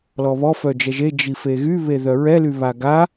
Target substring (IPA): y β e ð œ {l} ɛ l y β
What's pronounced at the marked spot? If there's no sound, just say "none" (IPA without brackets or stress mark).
ɹ